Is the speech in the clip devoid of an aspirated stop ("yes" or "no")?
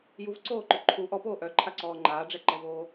no